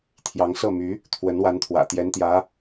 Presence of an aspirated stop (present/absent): present